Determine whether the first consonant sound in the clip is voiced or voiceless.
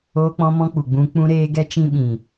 voiceless